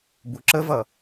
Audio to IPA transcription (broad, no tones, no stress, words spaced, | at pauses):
buǁəvʌ